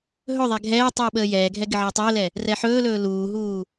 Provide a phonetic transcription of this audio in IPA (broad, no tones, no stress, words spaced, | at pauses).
ɦɵðˤɛ ɡʱɛː tˤuːɓəːjɛːɡʱɛ ɡɪʕəːtˤɵːlɛ | rɛħɵːlɵː luːɦuː